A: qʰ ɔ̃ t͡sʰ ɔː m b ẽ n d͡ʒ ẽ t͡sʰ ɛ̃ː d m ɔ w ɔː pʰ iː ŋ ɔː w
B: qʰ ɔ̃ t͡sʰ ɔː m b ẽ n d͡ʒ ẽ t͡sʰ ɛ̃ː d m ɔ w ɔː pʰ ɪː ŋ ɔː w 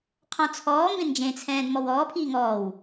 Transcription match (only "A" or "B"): A